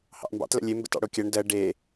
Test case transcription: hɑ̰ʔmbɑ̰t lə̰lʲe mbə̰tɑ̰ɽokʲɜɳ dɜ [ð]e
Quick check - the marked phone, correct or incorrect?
incorrect: ɖ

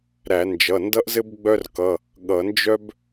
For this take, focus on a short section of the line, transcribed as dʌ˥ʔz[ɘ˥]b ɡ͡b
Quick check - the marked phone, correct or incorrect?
correct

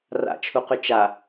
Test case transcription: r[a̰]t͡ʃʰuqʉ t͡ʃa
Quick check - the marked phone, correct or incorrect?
correct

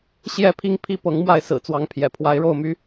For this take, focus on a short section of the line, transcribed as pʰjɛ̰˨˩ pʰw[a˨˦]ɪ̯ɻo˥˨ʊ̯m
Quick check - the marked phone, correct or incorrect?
correct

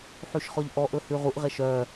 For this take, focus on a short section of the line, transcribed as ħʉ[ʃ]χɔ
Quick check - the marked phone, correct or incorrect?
correct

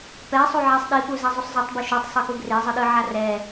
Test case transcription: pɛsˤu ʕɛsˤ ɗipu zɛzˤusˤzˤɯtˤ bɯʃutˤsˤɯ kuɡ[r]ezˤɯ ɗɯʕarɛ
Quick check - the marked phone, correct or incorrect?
correct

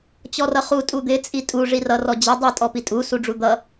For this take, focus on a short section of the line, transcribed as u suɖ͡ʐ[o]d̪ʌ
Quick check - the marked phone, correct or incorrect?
incorrect: u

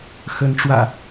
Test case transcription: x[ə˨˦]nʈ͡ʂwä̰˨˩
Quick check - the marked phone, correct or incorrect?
correct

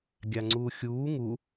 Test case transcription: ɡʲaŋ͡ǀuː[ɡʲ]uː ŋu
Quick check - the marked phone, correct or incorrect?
incorrect: xʲ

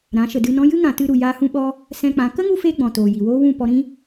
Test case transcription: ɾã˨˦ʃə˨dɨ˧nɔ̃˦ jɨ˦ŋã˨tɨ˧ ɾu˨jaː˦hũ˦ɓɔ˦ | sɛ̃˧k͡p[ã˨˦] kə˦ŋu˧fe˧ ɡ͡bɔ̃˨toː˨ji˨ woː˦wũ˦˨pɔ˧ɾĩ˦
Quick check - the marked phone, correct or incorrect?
correct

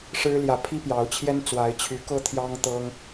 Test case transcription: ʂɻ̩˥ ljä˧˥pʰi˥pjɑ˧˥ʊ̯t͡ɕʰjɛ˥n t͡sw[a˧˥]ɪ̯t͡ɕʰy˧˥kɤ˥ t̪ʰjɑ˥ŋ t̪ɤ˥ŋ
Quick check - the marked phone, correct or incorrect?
correct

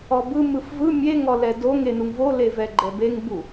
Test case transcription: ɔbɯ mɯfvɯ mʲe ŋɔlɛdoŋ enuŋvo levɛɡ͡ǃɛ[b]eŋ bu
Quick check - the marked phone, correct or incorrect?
correct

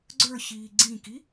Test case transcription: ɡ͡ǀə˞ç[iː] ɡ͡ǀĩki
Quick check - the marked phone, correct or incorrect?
correct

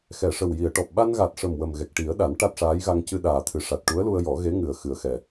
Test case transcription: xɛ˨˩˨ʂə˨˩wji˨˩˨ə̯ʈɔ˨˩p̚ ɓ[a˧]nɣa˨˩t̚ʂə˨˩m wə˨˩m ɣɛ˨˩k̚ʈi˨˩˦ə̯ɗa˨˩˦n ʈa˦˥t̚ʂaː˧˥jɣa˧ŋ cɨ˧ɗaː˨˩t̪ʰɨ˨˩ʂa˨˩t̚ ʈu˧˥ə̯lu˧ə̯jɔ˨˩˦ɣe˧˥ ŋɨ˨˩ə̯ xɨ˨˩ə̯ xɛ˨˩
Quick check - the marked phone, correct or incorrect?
correct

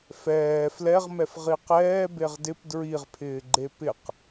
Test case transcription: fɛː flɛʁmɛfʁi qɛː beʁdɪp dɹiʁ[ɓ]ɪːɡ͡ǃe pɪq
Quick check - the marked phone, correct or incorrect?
incorrect: pʰ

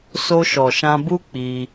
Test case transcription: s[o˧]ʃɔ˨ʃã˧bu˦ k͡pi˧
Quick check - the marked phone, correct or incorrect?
correct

